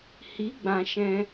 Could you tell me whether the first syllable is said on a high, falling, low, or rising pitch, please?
rising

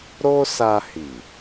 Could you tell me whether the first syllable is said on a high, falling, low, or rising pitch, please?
high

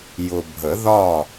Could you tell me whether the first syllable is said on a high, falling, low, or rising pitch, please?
low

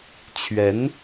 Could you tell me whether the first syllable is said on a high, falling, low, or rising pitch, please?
rising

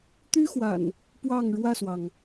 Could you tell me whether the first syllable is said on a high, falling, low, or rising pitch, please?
high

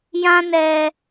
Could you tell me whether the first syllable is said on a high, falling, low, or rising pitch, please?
high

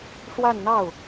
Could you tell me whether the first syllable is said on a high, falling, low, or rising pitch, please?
falling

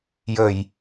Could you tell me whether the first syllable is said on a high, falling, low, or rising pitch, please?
low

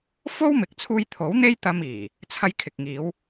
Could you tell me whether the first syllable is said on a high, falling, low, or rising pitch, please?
high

